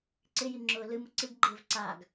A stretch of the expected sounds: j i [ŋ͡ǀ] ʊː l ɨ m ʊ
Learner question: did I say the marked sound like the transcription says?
no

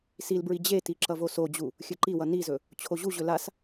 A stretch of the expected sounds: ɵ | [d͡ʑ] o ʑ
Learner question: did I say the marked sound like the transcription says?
no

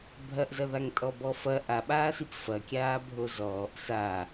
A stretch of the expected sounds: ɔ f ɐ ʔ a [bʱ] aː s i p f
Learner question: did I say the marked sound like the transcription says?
no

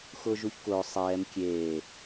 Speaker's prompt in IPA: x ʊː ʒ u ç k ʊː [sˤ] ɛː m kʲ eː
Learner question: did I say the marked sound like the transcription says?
yes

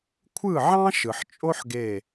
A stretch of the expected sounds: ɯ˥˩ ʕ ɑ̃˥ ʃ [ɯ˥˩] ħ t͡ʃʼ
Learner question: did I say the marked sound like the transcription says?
no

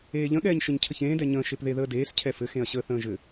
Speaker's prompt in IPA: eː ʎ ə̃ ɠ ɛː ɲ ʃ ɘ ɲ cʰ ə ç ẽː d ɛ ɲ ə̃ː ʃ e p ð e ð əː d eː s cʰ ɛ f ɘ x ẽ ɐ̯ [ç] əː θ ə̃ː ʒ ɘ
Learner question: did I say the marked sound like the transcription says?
no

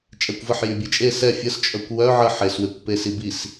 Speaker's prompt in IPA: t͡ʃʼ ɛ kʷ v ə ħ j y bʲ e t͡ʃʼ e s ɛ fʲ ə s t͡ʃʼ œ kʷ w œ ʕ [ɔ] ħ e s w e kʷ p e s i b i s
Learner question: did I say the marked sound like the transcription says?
no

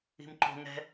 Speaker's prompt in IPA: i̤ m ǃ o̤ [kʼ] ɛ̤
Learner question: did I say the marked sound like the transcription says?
no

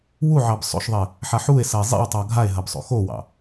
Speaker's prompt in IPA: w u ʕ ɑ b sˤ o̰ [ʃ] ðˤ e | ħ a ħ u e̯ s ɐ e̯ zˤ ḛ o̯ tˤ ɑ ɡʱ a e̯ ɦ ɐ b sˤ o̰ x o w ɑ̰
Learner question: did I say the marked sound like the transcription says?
yes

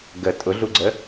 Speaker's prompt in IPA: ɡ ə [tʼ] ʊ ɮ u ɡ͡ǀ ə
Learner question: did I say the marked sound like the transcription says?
yes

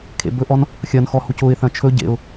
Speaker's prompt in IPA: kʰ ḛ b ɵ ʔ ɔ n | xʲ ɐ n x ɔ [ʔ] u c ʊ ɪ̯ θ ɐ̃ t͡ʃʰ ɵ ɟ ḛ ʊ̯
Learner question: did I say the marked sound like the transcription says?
no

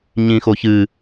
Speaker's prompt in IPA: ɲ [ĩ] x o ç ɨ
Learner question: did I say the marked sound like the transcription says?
yes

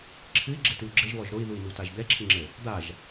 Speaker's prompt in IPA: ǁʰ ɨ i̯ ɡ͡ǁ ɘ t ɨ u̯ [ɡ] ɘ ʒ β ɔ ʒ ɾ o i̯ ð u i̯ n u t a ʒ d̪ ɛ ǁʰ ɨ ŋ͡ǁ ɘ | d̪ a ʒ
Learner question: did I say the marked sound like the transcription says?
no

